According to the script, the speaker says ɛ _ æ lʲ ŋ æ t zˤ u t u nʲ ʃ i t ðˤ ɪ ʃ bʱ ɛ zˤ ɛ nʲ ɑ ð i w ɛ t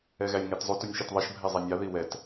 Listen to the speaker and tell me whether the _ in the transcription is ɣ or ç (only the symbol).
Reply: ɣ